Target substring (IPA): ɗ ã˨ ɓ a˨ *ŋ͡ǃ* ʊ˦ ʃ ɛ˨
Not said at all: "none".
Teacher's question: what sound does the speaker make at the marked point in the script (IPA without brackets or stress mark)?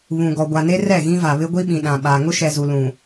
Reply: ŋ